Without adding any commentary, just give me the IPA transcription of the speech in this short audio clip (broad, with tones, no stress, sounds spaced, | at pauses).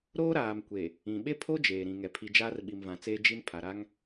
ɾ oː˦ ɾ aː˨ m kʷ e˨ | ĩ˨ ɓ e˦ pʰ o˦ d͡ʒ eː˨ ɾ ĩ˨ ŋ ɛ˨ pʰ i˨ d͡ʒ aː˦ r ɓ i˨ m v ã˨ t͡s eː˦ d͡ʒ i˦ n pʰ a˨ ɾ a˦ ŋ